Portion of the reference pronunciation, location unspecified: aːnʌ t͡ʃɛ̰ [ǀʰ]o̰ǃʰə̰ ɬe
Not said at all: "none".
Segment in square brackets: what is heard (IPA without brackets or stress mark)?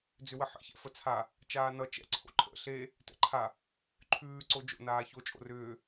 ǀʰ